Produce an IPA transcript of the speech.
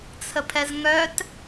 t͡sʰ ə pʰ ɛ z ŋ œ t

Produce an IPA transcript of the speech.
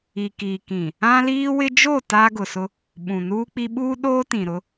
i˨ k iː˨ k ĩ˨ | ã˦ l iː˦ w ɪ˦ d͡ʒ o˦˨ t aː˦ ɡ ʊ˨ s ʊ˦ | ɓ ũ˨ n uː˦ k͡p i˦ ɓ uː˦ ɗ oː˦ t ĩ˨ ɾ ʊ˦

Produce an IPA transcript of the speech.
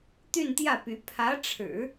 t̪ y˥˧ n t̪ j ä˥˩ p y˧˥ pʰ ä˧˥ ʈ͡ʂʰ ɻ̩˨˩˦

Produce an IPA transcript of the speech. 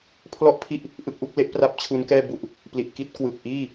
pʰ l ɔ˥˩ ʔ pʰ i˥˩ ʔ | ʔ ɯ˦˥ k̚ ʔ u˦˥ k̚ l e˦˥ ʔ p r a˦˥ p̚ t͡ɕʰ u˦˥ n k ɛː˥˩ b u˥˩ ʔ | p l i˨˩ ʔ k i˥˩ t̚ k w ɯ˨˩ k̚ ʔ iː˥˩

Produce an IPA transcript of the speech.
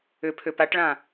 ʏ pʰ ʏ p a ʈ ɭ ã

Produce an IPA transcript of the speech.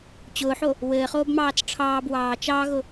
t͡ɕ ʊː ħ o | w ɘː χ oː b m ɑː t͡s ʈ͡ʂʰ ɑː b w ɑː t͡ʃ ɑ ɣ ʊ

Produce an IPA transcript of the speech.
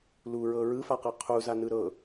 l u ɹ ɤ ɹ ɯ f a q ɤ qʰ u z a n ɯ ɾ ɤ

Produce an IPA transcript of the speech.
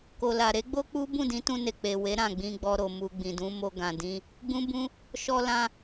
k o˨ l a˨ ɾ e˨˦ ɡ͡b o˦ k͡p u˦ b ũ˦˨ d ĩ˨˦ t ũ˧ n e˨ k͡p e˨ w e˨˦ ɾ ã˦˨ ɡ͡b ĩ˧ ɡ͡b ɔ˧ ɾ o˨ m u˨ ɡ͡b ĩ˨ d ũ˨˦ m o˧ ɡ ã˨ d ĩ˧ | ɡ͡b ũ˦ b ũ˦ | ʃ ɔ˧ l ã˧

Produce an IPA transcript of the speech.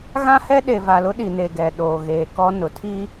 ɣ ã˦ h ɛ˦ ɗ e˨ v a˨ l ʊ˦ ɗ i˨ n e˨ ɡ ɛ˨ ɗ oː˨ ɣ eː˨ k ɔ˦ n ʊ˨ tʰ i˦

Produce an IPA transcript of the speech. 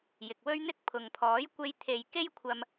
j ɪ˨ k̚ w ɵ˥ ɥ n̪ ɪ˥ k̚ pʰ ʊ˨ ŋ pʰ ɔː˨˥ j kʷ e˧ j t̪ʰ e˨ j k e˥ j kʷʰ ɐ˧ m

